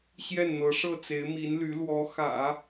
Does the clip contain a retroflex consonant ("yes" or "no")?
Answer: yes